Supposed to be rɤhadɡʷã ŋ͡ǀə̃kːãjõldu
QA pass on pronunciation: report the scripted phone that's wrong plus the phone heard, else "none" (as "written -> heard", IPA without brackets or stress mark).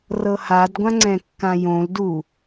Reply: ə̃ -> ɛ̃